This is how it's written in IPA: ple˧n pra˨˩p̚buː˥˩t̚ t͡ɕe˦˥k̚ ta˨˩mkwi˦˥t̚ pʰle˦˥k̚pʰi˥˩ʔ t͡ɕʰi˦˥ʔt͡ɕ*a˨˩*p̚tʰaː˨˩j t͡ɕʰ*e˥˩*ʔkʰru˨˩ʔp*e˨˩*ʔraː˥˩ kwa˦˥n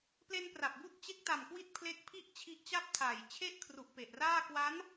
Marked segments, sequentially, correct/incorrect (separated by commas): incorrect, correct, correct